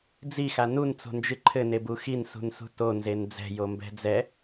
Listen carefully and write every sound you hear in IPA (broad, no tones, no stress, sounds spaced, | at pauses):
d͡z i x a n u n t͡s o̤ n d͡ʒ ɨ ǃʰ ɘ n e b u x i n s ṳ n s ṳ t o n z e n d͡z ɛ̤ j o m b ɛ̤ d͡z ɛ